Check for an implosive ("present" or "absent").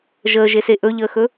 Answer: absent